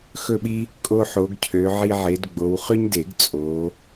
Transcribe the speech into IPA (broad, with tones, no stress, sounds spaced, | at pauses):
x ɵ˦˨ ɓ i˦ | kʼ o˦ ħ o˨˦ ɡ cʰ ø˨˦ ʕ i˦ ʕ e˨˦ d ɡ͡b o˨˦ w χ y˦ ɲ d e˨˩˦ ɡ t͡sʼ o˨˦